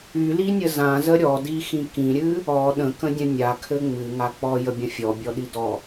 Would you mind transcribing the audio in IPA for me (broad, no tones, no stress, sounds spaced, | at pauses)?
y l i nʲ ə z ã z ə ɾʲ ɔ d i x ĩ k ĩ ɾʲ ɨ | ɔ ɗ ə̃ k ə̃ dʲ ə̃ nʲ a kʰ ɘ ŋ͡m ɨ ŋ a k͡p ɔ j ə bʲ ə̃ fʲ ɔ bʲ ɔ ɗ i d ɔ